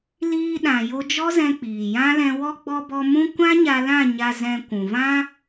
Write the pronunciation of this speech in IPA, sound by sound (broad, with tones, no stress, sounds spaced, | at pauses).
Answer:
l iː˧ ɗ ã˨ j o˧ d͡ʒ ɔ˦ z ɛ̃˧ k͡p iː˨ j ã˦ l ɛ̃˧ w ɔ˦ ɡ͡b ɔ˧ b ɔ˧ m ũ˦ kʷ ã˦ ɲ a˧ l ã˦˨ ɲ a˧ z ɛ̃˧ kʷ ũ˨ v ã˦